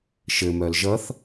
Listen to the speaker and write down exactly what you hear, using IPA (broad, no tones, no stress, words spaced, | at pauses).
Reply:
ʃɘmœl ʒʌθ